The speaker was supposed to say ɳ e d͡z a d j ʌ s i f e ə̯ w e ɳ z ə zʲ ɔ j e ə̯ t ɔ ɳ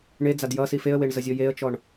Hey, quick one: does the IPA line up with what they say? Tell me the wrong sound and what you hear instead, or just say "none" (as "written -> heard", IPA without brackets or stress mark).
t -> t͡ʃ